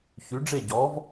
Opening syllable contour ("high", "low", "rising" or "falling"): rising